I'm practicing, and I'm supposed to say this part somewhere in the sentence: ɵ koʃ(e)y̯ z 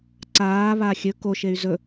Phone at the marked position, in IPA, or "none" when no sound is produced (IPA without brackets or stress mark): e